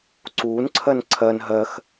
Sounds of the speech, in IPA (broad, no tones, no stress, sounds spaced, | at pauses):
ǀ uː n ǀʰ ɜ n ǀʰ ɜ n ɦ ɜ x